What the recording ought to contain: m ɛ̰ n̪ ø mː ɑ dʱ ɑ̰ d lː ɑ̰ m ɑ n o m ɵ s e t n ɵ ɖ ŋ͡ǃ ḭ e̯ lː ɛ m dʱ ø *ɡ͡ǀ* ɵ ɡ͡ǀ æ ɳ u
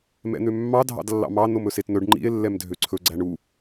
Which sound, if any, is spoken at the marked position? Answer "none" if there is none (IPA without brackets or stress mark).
ǀʰ